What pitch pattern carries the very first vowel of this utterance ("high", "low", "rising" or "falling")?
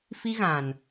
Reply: high